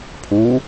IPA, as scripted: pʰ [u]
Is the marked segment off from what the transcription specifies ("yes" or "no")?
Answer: no